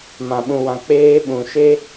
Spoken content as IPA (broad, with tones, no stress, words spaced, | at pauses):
mã˨ɓũ˨wã˨ k͡peː˦ ɓũ˨ʃe˦